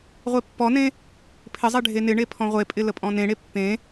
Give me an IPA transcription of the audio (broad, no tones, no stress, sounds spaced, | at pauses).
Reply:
ʁʷ e pː ɔ n ẽ | pʰ ɪ zˤ e ɖʱ e n ɪ ɳ e pʰ ɔ̃ ʁʷ e pʼ ɪ l ə pʼ ɔ̃ n ẽ ɽ e pː ẽ